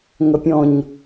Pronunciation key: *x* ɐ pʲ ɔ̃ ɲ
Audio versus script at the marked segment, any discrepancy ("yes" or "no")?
yes